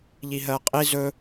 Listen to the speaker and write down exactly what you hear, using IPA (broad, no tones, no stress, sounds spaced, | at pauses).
ʎ i ɦ ɜ qʼ i z ɵ